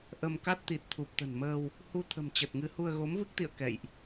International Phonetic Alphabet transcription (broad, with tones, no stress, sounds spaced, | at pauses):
ʔ ə˧ m k a˦˥ t̚ t̪ i˨˩ t̚ t̪ʰ u˨˩ p̚ t̪ ə̤˨˩ n m əː˧ w | h u˧ t̪ʰ ə̤˨˩ m t͡ɕ ə˨˩ t̚ ŋ ɨ˨˦ h u˧ ə̯ ɣ o˨˦ m v ɨ˦˥ k̚ t̪ ḭ˧˨ ə̯ k ɛ̰˧˨ j ʔ